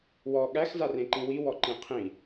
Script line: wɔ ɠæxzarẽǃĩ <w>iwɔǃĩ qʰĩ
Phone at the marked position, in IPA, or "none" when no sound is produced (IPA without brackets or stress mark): w